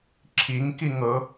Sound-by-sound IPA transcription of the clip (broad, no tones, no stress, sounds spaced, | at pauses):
ǁʰ i ŋ k i ŋ ɤ